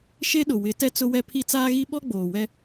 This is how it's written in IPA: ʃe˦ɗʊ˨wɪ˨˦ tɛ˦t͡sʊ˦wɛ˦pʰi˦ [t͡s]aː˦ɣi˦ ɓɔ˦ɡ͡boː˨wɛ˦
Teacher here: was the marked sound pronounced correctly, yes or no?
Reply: yes